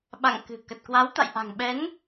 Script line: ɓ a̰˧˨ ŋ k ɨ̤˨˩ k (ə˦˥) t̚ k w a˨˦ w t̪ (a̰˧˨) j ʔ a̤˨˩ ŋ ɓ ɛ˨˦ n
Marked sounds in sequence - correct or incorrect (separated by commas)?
incorrect, correct